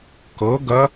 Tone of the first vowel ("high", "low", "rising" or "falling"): rising